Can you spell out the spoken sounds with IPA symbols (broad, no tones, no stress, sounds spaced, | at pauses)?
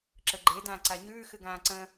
ǁ ə ɡ͡ǃ e d ãː ǀ a ɲ ʉː x ɨ ɡ ãː ǀ ə̃